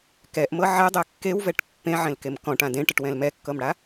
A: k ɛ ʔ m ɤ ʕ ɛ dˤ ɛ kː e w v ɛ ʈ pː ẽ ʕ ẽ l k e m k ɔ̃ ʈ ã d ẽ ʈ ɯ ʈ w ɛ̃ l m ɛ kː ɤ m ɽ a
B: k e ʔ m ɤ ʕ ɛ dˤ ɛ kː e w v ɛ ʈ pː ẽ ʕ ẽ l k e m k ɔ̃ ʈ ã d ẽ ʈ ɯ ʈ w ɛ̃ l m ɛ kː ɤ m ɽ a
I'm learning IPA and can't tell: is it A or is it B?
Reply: A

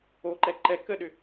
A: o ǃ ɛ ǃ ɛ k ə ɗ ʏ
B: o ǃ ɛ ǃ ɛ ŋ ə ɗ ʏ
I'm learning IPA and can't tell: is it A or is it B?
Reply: A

